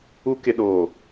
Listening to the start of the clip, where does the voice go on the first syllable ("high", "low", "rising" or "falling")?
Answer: rising